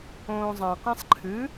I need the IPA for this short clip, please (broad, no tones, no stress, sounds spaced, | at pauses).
õː zˤ ã q ẽ sˤ ǃʰ ɨ